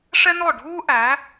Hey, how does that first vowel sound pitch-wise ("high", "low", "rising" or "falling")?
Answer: high